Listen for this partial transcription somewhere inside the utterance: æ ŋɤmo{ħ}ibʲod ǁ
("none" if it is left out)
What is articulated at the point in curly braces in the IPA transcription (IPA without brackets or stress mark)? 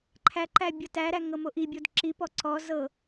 ʔ